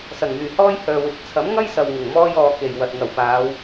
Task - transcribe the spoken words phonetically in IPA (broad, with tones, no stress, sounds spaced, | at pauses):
s ɐ˨˩ ŋ m yː˨˩ h ɔː˥ j h œː˨ w ɪ˨˥ k̚ t͡sʰ ɐ˨˥ m ŋ ɐ˥ j s ɐ˨ w ŋ ʊ˨˩ ŋ m ɔː˥ j ɔː˧ k e˨ j w ɐ˨ t̚ ŋ ɐ˨˩ w p aː˨˧ w